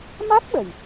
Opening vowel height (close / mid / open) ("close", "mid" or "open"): open